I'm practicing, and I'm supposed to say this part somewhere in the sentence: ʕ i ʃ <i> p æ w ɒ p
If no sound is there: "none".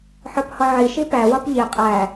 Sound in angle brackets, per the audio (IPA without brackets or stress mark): i